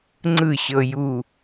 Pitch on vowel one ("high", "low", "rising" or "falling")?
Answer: falling